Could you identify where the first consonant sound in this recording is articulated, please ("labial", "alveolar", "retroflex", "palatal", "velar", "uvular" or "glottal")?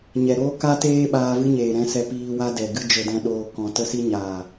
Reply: palatal